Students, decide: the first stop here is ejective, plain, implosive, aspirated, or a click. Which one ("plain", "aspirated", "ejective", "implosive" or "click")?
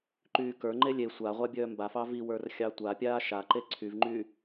click